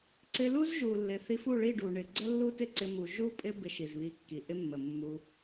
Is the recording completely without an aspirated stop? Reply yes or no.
yes